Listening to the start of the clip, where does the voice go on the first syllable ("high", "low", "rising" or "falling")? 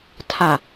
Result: low